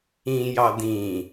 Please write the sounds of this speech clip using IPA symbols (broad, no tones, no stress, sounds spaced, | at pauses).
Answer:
ĩ j ɑ d ĩ